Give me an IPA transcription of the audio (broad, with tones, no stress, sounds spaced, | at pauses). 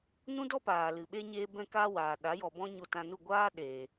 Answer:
n ũ˦ d ɔ˦ p aː˨ l ɨ˨ ɓ e˦ ɲ eː˦ b ɛ̃˧ k aː˧ w aː˨ ɗ a˨˦ j ɔ˨ b ɔ̃˦ ɲ o˧ t ã˧ n u˦˨ ɡʷ aː˦ ɗ eː˨